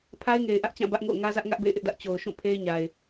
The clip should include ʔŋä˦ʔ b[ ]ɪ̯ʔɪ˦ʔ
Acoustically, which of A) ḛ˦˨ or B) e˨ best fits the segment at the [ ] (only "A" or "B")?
A